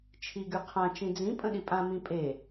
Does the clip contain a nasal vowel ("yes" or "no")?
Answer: yes